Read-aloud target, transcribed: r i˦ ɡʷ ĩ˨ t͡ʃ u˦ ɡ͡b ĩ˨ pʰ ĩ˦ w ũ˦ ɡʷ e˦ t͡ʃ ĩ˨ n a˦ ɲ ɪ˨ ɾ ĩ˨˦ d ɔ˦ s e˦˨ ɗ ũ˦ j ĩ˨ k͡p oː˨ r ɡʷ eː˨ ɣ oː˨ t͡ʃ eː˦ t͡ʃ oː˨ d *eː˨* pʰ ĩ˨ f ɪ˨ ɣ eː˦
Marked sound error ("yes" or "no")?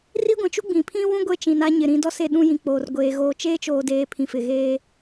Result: no